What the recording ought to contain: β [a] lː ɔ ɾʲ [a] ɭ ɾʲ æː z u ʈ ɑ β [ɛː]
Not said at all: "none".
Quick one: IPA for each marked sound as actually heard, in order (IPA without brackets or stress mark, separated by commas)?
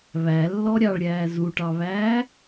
æ, ɑ, æː